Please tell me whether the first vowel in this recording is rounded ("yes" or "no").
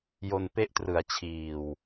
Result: yes